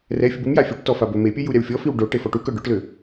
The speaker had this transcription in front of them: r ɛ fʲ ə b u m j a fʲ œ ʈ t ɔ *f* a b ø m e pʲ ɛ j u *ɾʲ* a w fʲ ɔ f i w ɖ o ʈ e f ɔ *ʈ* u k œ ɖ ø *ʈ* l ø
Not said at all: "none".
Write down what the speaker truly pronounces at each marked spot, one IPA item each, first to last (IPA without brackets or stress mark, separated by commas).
f, ɾʲ, ʈ, ʈ